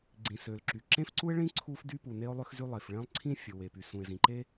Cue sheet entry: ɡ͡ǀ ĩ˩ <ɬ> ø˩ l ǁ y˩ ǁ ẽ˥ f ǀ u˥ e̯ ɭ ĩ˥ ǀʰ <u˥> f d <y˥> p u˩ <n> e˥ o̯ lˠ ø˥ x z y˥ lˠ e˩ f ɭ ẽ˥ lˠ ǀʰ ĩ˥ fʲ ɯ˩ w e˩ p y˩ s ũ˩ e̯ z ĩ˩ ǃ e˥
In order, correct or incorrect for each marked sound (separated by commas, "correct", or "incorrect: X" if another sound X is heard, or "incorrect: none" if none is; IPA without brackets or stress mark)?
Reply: incorrect: s, correct, correct, correct